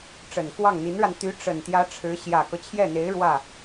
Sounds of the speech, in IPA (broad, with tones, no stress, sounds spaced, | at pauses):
ʈ͡ʂ ə˨˩ n k w ɑ˥˩ ŋ n̪ i˧˥ n ɻ a˧ n t̪ y˧˥ ʈ͡ʂ ə˨˩ n t̪ j ä˧˥ ʈ͡ʂʰ ɻ̩˧˥ ɕ j ä˨˩ k ɤ˦ t͡ɕʰ j ɛ˥˩ n̪ e˧˥ ɪ̯ ɻ w ä˥˩